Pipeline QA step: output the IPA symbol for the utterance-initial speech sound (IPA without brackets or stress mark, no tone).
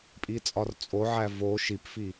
pʼ